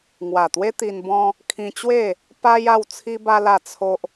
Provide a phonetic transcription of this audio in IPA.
ŋ w a˨˩ t̪ w e˦ t̪ i˧ n b ɔ̃˦ | kʰ ĩ˧ t͡ɕ w e˥˧ | p a˦ j a˦ w t͡sʰ i˦ b a˦ l a˥˧ t͡sʰ o˦ ʔ

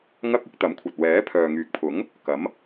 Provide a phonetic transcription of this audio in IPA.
ŋ ɐ˥ k̚ ɪ˥ k̚ t̪ ɐ˨˥ m kʷʰ ɐ˨ t̚ w ɛː˨˥ pʰ œː˨ ŋ yː˨˥ k̚ pʰ ʊ˨˥ ŋ | k ɐ˨˥ m

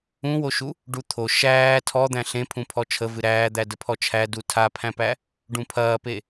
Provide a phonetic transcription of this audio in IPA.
ũ w o ʃ u | ɖ u t̪ʰ o ʃ æː tʰ ɔ d̪ æ̃ ɬ ẽ pʰ ũ pʰ ɔ t͡ʃʰ ə v ɨ ɾ æː d̪ æ d ə pʰ ɔ t͡ʃʰ æ d u tʰ a pʰ æ̃ p æ | ɖ ũ pʰ ɐː p e

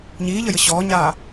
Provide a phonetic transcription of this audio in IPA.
ɲ iː ʎ ə j ə ɕ ɔː ɲ aː

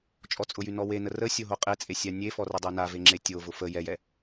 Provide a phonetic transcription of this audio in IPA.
t͡ʃʼ ɔ t͡sʼ ʊ j y n ɔ w e n ə r ə sʲ o ɦ o qʼ e t͡sʼ e sʲ a nʲ e f ɔ r ə dˤ e n a v e ŋ͡ǁ e tʲ o v ʊ f ə j ɛ j ɛ

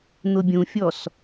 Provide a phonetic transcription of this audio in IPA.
n̪ ʊ bʲ ũ fʲ ɔ s

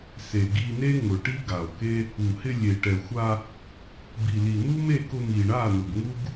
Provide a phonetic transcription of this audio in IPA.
s e˨ ɡ i˧ n e˦ ŋ ʊ˨ ʈ i˦ ɡ a˨ o̯ k e˦ | u˨ h ɪ˧ lʲ e˨ ʈ ɛ˨ xʷ a˧ | b i˨ l i˨ n̪ u˦ m e˦˨ k ʊ˧ m i˨ ɳ a˦˨ n ʊ˨ ɡ ŋ u˦ ɡ

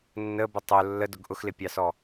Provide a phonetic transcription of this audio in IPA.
nː ə b ə tˤ ʊ lː ə d ʊ ɡ ʔ ʊ x l ɪ pʲ ɑ s ɔ

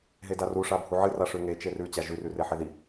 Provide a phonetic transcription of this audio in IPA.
ɦ e d a r u ʂ a bʱ u ʕ ɨ r a ʂ ʉ ŋ e t͡ʃ e r ʉ t͡ɕ a ʒ ʉ r ʉ r e ħ e ð i

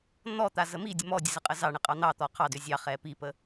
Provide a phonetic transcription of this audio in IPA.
n̪ ɔ t̪ a z ə m i dʲ ə m ɔ dʲ ə z ə qʼ ə z ɑ ɳ ə qʼ ɑ n̪ ɑ t̪ ɔ qʰ ɑ d ʏ zʲ ɑ χ ɛ p i p ə

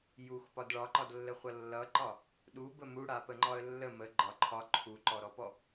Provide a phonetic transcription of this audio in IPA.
j u x p ɒ d ɭ ɒ ǃ ɒ d lː ə χʷ ʌ lː ʌ ǃ ɒ | ɗ u b ə m u ɽ a p ə ŋ͡ǃ ɒ ə̯ lː ə m ə ɡ͡ǃ ɒ ǃʰ ɒ ǃʰ u ǃ ɔ ɾ ɔ p ɔ

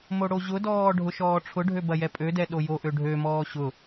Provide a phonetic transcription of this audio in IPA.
m o ɽ o ʑ ʊ d ɔː ɖʱ ʊ ʃ ɔː ʈ͡ʂʰ ʊ ɖʱ ø b ɐ j ɛ pʼ ø d ɛ ɗ o j o ʔ ø ɖʱ ø m ɔː ɕ ʊ

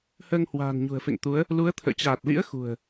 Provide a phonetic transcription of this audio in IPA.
h əː˧ ŋ h w a̤ː˨˩ n ɲ ṳ˨˩ ə̯ f ḛ˧˨ ŋ t̪ u˨˦ ə̯ | l u˨˦ ə̯ t̪ʰ ə̰ː˧˨ t͡ɕ aː˨˩ t̚ l ḭ˧˥ ə̯ x ṳ˨˩ ə̯

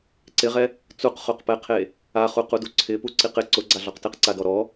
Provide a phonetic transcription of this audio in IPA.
ǀ ɪ ʁ ɛ | t͡s u q χ o q p ɛ qʰ e | a χ u q u d u ǀʰ ɪ p u ǀ i q ɪ ǀ ʊ ɡ͡ǀ a ɮ ɔ q t ɪ q ǀ a d ɔ ɾ ɔ

